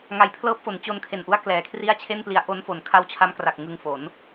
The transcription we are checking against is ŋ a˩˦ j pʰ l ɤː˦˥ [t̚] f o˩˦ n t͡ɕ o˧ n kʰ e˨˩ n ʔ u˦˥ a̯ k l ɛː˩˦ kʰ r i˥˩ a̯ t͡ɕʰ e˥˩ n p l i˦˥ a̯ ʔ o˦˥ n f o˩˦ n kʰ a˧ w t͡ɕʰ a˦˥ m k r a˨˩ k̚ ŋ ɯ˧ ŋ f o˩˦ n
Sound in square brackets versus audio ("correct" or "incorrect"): incorrect